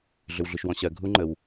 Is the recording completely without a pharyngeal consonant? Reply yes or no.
yes